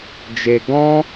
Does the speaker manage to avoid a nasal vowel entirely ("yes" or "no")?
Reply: no